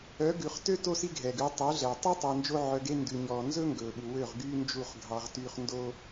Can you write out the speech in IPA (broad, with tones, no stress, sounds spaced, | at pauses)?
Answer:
œ˨˦ ɡ ʉ˨ χ t ø˦ t o˦ s i˦ ɡʱ ɛ˨ ɡ ʉ˨˦ tˤ ʉ˨˦ ɮ ɛ˨ tˤ ʉ˦ tˤ ɵː˧ n d͡ʒ o˦ ʕ œ˧ ɡ e˦ n d ʉ˨ ɲ ɔː˨ n z ɵ˦ ŋ ɡ ɵː˨ ɓ u˨ w ø˦˨ ʁ ɡ yː˦ n d͡ʒ u˦˨ χ ɡʱ ɑ˧ ʁ t yː˧ χ n d o˦